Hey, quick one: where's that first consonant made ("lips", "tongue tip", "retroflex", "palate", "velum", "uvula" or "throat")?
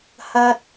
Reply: throat